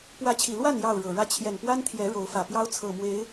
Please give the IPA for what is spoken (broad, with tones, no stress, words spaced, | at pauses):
pwä˨˦t͡ɕʰi˨˩lwa˥˨n jɑ˥˨ʊ̯ɻɤ˨˩ɻä˦ t͡ɕʰjɛ˨˩npwa˦nt̪ʰjɛ˨˦ ɻo˨˦ʊ̯fä˨˩pjɑ˦ʊ̯ t͡sʰɤ˨˩mwe˨˦ɪ̯